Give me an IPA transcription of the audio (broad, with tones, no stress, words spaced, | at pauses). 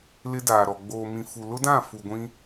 lɪ˦daː˨ɾɔ˨ ɡ͡boː˨mĩ˨fu˨ lʊ˦dã˦˨ fu˨ɡʷĩ˦